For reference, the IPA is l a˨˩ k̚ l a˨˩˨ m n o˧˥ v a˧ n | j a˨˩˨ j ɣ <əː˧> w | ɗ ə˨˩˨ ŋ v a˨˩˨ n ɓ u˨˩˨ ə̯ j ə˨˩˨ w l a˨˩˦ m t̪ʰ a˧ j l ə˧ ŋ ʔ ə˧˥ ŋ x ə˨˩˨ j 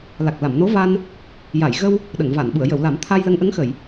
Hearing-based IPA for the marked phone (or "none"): ə˧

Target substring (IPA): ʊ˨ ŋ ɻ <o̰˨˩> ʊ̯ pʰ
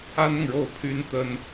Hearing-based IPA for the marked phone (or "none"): o˥˩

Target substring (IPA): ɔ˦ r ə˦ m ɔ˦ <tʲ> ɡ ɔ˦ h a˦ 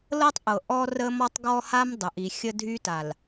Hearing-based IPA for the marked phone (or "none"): tˤ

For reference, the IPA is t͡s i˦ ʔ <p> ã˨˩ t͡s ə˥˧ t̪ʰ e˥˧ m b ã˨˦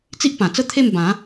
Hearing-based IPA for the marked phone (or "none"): p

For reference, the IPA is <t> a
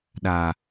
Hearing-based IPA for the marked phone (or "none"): ɗ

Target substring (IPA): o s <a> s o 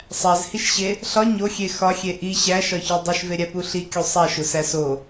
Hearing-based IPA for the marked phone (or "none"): æ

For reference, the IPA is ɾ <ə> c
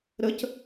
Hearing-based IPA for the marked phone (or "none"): ə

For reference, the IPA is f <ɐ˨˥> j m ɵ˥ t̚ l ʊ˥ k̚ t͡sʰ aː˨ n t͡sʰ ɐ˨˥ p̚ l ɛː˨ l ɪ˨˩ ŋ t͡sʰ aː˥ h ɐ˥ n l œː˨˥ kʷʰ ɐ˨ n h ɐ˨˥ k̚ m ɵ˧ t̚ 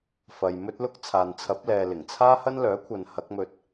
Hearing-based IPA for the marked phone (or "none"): ɐ˨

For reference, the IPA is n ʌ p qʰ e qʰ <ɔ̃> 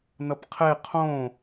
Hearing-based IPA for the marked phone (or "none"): õ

